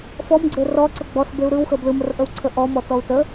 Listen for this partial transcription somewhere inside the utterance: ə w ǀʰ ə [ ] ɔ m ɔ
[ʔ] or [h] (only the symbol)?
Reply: ʔ